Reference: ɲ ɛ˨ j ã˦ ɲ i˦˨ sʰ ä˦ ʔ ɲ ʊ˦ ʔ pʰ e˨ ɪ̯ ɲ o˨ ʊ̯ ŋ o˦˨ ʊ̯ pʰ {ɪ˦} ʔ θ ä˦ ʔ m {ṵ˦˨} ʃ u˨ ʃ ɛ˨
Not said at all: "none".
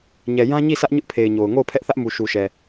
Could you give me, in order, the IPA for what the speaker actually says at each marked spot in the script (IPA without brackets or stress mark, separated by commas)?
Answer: ɛ˦, u˨